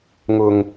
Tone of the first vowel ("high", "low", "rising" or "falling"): low